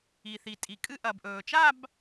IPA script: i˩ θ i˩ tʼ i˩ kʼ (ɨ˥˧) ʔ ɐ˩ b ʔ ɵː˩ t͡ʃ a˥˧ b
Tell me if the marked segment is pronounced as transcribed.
yes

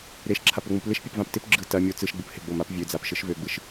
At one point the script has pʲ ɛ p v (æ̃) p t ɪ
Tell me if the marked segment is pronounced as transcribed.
no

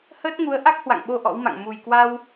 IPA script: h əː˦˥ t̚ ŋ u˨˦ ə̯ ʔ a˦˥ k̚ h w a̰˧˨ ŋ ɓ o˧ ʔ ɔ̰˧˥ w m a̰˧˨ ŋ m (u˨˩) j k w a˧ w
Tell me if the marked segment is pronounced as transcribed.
yes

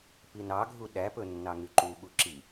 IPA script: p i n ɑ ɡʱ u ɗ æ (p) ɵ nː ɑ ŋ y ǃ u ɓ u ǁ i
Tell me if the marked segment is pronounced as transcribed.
yes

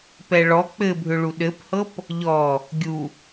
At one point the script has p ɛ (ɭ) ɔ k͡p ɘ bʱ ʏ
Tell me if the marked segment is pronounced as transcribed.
yes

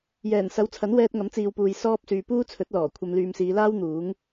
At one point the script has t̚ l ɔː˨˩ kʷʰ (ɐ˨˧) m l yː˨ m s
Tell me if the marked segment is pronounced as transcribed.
no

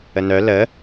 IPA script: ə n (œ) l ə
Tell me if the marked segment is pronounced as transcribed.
yes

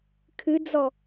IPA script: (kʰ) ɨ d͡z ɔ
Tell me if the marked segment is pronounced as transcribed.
yes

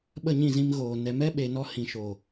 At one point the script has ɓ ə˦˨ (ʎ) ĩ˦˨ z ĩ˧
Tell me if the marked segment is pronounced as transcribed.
no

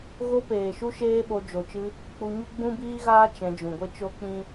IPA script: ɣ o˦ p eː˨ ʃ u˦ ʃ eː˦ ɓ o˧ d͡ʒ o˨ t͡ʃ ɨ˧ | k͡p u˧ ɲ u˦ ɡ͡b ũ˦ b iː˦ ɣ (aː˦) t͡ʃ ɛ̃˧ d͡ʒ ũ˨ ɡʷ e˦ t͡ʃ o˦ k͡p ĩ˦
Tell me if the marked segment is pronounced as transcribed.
yes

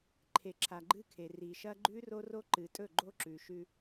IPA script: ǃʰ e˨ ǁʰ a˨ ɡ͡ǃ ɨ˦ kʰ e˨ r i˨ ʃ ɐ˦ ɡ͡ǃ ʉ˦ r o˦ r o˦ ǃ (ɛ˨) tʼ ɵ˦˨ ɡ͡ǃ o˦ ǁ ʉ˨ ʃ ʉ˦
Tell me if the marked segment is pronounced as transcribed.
no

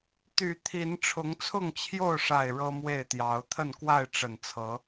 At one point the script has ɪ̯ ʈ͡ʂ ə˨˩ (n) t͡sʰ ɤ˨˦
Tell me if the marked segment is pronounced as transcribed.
yes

